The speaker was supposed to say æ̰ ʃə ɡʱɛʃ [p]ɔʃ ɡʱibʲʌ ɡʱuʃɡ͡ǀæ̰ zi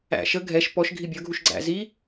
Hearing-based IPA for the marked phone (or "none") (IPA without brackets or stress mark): p